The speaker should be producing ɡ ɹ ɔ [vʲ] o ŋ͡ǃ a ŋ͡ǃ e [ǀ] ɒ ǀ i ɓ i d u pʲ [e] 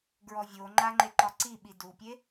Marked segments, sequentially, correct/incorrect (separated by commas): correct, incorrect, correct